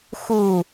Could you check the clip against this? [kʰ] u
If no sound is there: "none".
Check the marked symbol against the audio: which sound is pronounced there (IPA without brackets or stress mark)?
x